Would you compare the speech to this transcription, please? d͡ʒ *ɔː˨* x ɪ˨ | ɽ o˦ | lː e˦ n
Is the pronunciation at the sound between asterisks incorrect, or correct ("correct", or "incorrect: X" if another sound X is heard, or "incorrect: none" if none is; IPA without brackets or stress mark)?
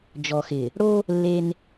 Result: incorrect: ɔ˨